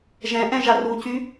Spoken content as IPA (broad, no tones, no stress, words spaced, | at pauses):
ʒɛ̃ʔɛ̃ ʒarucy